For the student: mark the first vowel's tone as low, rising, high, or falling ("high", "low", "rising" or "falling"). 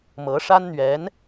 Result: rising